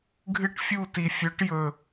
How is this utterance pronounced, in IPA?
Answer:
ɡʱɨ˦ʈfʲu˦˨ti˨ fʲɵ˨˦ʈ jɵ˨

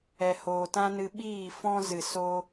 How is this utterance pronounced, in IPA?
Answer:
ɛ˨hoː˨ tã˦nɨ˧ ɓiː˦˨fɔ̃˦zɨ˨ so˧

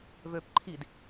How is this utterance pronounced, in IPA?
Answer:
vøːpǃʰid

